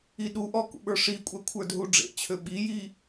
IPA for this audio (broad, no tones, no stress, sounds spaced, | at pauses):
i ɗ u ʔ ɔ k ṵ ɓ ə˞ ʂ i kʷʼ æ kʷʰ ə˞ d ɦ u ɖ͡ʐ ḛ t͡ɕʰ ø ɓ i j i